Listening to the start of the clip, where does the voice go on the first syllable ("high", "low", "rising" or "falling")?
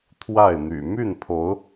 falling